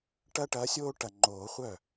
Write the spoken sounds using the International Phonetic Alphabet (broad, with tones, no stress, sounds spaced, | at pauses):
ʈ ɐ˥ ʈ ɐ˨˥ sʲ oː˥ ʈ ɐ˨˩ ŋ͡ǃ oː˨˩˦ χʷ œ˥˩